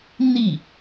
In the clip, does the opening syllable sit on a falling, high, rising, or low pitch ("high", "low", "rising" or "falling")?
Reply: falling